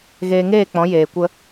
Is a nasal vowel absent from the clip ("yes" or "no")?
no